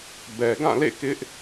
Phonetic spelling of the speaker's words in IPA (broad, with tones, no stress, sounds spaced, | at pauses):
b ɛ˨ ɡ ã˦˨ l ḛ˦˨ k ɪ˦ ʔ